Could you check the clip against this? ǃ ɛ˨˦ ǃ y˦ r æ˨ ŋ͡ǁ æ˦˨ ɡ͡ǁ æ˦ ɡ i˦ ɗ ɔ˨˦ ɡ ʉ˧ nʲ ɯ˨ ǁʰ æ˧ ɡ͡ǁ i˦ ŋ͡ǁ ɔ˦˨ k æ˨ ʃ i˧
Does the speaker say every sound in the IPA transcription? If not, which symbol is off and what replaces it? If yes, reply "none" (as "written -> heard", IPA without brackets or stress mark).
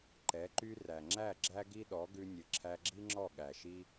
k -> ɠ